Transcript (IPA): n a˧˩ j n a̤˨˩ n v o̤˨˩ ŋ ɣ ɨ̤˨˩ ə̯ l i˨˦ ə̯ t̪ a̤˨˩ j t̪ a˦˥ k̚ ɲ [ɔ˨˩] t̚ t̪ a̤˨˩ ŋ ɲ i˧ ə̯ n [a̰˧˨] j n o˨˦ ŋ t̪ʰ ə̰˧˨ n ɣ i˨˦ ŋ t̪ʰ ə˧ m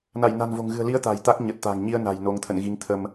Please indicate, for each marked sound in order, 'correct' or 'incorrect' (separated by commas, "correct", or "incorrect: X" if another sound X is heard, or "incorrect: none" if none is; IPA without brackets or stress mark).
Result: incorrect: ə˨˩, incorrect: a̤˨˩